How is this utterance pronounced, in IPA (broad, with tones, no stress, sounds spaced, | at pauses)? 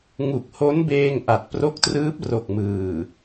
ŋ u˨˩ k̚ h o˦˥ n b eː˧ ŋ ʔ a˨˩ t̚ p r o˦˥ k̚ t r ɯː˦˥ p̚ r o˨˩ k̚ m ɯː˨˩